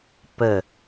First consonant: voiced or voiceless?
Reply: voiceless